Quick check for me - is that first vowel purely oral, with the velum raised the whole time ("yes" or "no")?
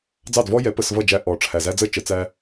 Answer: yes